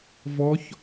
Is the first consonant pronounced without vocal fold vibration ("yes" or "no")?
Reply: no